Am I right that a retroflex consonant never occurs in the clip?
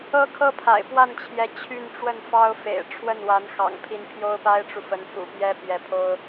no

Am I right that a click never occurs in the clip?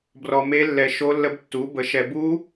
yes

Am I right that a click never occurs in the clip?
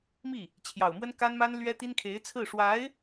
yes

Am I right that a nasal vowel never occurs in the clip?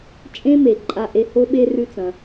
no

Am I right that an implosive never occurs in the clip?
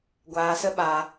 no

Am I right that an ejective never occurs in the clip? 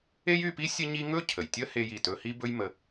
yes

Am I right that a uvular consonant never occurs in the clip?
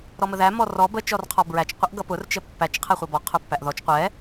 no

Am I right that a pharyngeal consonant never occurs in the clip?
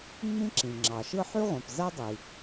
no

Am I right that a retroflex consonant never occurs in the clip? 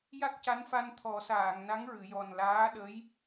yes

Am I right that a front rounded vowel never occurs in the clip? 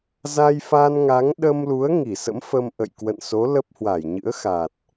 yes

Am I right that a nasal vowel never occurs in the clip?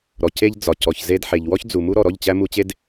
yes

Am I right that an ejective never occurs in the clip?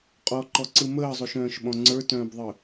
no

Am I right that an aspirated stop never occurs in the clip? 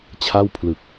no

